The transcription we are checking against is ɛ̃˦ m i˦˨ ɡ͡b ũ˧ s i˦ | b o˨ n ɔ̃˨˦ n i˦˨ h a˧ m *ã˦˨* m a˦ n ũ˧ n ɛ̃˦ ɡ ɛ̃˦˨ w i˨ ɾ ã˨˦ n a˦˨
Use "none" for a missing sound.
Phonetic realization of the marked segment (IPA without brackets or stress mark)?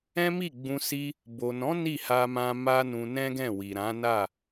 ã˧